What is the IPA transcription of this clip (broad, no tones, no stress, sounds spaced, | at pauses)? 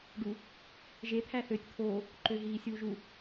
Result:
ɖ u | ʒ e t̪ʰ æ θ ø tʲ t̪ʰ oː | ǃ ø ɦ iː sʲ uː ʒ u